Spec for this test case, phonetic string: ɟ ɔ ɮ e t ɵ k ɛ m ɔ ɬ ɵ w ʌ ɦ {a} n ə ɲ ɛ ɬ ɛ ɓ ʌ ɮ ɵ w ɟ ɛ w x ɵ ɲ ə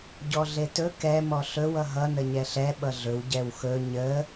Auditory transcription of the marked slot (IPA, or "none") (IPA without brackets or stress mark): ʌ